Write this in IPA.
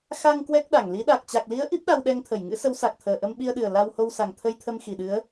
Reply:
x a˧ ŋ k w ɛ˦˥ k̚ ɗ a˧˩ ŋ l i˨˦ ɗ a˨˩ k̚ t͡ɕ a˨˩ k̚ l i˨˦ ə̯ ʔ i˦˥ p̚ ɗ a˧ w ɗ ɛ˧ ŋ t̪ʰ ə˧˩ j ŋ ɨ̰˧˥ s ə˨˦ w s a˨˩ k̚ t̪ʰ əː˨˩ ʔ ə˧ m ɓ i˧ ə̯ ɗ ɨ˨˩ ə̯ l a˧ w h o˧ w s a˨˩ ŋ t̪ʰ ə˧ j t̪ʰ ə˧ m x i˨˩ ɗ ɨ˨˦ ə̯

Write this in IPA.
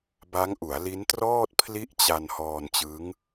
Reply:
b a˦˥ ŋ ʔ u˩˦ a̯ l i˦˥ n t r ɔː˥˩ t̚ pʰ l i˥˩ ʔ t͡ɕ a˧ n h ɔː˧ n t͡ɕ ɯ˦˥ ŋ

